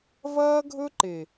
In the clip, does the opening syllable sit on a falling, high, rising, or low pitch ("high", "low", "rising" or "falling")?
high